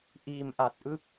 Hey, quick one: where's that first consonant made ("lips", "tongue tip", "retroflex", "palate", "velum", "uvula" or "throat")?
throat